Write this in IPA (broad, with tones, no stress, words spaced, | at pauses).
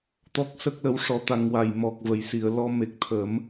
t̪ɔ˦˥k̚sə˦˥k̚lə˧˥w ʂɔ˧˥t̪a˧ŋ wa˨˩jmɔ˨˩k̚və˨˩˨j si˨˩˨ə̯lɔ˧me˨˩k̚ t̪ʰə˨˩˦m